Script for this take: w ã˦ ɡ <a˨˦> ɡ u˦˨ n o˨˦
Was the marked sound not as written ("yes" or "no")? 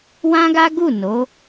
yes